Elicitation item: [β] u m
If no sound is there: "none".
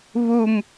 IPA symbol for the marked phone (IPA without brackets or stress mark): β